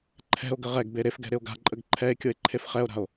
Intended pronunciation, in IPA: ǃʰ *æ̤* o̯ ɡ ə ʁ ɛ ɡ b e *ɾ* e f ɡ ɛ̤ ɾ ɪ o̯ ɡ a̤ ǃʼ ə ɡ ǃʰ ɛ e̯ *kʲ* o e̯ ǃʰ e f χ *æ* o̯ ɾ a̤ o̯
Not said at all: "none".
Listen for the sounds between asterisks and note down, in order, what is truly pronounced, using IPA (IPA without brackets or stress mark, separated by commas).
ɛ̤, ɾ, kʲ, ɛ